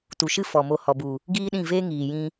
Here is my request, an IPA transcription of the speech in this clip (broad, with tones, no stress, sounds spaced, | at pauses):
t u˨ ʃ ɨ˦ f ɔ˨ m o˧ h ɔ˨ b u˨ | ɡ iː˦ ɗ ĩ˦˨ v eː˦ ŋ iː˨ j ĩ˦